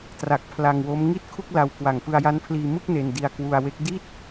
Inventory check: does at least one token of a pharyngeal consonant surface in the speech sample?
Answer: no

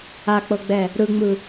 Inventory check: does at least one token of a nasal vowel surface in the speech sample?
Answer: no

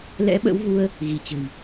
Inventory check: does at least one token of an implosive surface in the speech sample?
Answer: yes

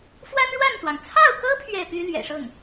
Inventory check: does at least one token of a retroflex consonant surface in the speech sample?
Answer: yes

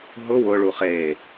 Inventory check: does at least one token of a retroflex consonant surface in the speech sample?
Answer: yes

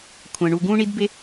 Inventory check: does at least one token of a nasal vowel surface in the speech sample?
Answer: yes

